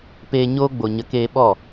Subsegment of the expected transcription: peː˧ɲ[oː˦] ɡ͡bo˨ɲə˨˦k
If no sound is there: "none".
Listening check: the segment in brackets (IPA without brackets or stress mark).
oː˦